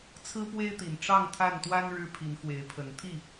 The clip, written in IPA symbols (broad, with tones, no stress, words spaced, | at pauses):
t͡sʰɹ̩˦pwe˦ɪ̯t̪i˨˩n ʈ͡ʂɑ˥˨ŋt̪ʰa˥˨nt̪wa˦n ɻɻ̩˦pʰi˨˦nxwe˨˦ɪ̯pʰə˨˦n t̪ʰi˥˨